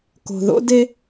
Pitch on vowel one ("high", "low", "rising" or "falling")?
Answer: low